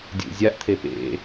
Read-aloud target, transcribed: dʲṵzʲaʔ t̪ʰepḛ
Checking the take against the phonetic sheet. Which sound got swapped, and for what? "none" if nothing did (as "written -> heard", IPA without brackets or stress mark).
none